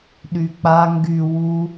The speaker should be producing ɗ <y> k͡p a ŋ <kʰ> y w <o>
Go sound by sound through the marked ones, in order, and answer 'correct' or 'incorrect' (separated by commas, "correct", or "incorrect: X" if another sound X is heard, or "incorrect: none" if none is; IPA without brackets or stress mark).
correct, incorrect: ɡ, incorrect: u